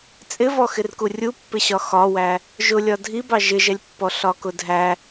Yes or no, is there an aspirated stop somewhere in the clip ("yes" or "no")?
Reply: no